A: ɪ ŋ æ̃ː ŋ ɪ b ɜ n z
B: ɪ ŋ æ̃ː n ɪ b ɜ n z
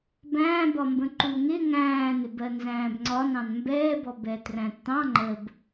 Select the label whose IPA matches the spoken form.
B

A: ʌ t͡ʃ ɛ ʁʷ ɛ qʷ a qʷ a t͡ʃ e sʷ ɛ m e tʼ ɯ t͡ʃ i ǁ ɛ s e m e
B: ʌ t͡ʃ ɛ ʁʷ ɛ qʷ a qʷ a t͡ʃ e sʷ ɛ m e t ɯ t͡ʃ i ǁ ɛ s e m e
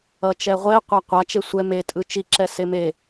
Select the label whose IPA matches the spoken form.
A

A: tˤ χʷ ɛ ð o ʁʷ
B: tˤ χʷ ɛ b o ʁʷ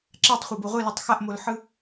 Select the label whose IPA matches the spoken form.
B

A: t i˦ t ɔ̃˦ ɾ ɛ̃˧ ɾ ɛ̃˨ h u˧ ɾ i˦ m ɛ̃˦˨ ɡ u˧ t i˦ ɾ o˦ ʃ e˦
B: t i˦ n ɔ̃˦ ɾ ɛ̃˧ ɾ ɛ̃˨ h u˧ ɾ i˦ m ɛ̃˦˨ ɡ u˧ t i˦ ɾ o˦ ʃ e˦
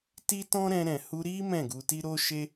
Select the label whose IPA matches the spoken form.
A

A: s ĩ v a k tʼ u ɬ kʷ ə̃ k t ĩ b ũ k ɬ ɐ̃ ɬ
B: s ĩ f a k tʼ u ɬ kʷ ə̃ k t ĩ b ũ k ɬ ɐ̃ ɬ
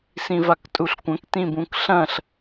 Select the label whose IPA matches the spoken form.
A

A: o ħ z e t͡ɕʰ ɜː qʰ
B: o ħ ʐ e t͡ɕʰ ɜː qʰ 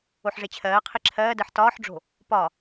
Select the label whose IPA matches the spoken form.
B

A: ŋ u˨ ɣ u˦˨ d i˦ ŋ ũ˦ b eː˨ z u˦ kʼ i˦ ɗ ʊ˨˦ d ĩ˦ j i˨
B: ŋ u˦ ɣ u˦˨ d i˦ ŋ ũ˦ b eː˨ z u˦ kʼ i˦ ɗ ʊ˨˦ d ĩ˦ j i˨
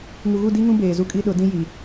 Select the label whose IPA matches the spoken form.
A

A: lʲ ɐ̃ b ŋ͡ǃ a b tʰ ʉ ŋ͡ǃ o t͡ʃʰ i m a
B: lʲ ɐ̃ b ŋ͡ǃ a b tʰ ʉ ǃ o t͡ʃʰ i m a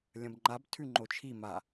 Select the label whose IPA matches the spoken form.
A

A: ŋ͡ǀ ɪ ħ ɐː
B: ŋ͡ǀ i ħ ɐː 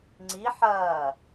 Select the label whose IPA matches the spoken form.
B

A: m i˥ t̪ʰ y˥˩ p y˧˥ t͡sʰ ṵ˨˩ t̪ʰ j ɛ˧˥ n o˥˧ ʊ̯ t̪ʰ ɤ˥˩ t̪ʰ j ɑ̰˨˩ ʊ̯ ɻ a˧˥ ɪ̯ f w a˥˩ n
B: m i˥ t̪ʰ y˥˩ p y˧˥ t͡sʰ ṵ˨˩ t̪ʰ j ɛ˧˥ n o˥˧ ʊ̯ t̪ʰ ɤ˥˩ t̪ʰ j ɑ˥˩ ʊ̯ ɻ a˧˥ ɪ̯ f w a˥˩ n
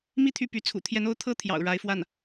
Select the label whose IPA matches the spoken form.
A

